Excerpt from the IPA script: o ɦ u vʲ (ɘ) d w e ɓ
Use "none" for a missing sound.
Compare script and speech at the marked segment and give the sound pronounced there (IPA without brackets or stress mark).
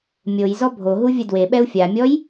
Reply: ɘ